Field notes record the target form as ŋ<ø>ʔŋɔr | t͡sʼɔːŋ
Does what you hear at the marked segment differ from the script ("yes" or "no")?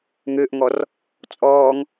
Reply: no